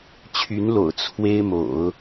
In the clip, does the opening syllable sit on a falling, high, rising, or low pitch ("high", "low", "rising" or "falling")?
rising